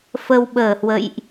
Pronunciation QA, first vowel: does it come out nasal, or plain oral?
oral